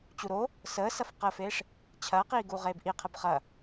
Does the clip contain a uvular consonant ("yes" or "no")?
yes